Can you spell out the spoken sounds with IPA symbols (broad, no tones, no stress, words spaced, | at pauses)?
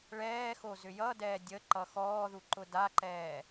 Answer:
ɭɛːxo zʏjʌdɛː dʲə ǃʌxɔːðu ǃʊdaǃɛː